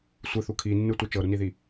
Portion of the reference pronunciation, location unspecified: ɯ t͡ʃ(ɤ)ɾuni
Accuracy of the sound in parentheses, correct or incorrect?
correct